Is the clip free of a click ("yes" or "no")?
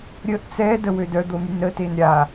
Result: yes